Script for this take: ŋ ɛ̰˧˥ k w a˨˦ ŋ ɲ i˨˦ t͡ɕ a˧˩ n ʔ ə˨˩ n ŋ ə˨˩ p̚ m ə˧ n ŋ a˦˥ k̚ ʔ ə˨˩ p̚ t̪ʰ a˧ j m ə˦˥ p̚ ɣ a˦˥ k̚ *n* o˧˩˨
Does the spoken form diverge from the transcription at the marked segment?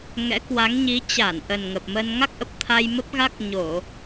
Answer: yes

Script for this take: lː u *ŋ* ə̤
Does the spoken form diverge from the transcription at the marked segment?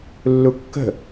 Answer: yes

